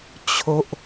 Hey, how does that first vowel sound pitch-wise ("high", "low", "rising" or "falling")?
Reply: low